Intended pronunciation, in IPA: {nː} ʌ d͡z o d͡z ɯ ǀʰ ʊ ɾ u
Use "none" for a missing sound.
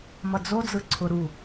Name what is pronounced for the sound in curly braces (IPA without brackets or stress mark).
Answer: m